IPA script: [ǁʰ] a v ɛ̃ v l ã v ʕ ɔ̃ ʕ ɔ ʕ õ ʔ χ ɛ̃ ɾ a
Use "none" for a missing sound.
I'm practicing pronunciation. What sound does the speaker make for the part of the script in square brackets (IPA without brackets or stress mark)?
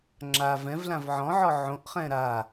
ŋ͡ǁ